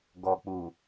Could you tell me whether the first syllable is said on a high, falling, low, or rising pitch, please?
low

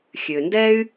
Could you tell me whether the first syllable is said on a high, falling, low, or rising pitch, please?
low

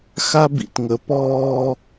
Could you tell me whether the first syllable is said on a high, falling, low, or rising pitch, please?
high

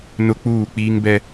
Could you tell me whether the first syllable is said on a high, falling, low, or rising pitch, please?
high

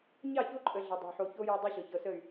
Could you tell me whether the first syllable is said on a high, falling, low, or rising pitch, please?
falling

